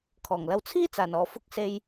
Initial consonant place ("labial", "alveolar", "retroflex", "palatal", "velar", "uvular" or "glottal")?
velar